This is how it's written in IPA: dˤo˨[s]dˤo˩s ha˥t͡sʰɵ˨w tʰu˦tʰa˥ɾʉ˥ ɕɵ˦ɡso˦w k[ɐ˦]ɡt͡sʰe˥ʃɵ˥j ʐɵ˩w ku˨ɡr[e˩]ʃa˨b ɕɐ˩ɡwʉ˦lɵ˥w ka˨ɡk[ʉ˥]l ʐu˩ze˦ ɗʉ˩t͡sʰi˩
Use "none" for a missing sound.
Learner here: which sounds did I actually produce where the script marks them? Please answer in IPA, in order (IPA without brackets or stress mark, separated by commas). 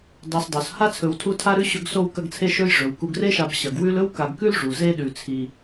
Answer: s, ɐ˦, e˥, ʉ˥